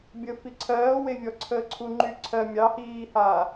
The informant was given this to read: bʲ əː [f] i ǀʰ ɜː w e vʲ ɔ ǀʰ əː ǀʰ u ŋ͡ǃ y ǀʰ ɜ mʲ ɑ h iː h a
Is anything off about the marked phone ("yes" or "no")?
no